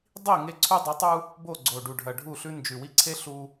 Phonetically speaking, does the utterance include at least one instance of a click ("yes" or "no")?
yes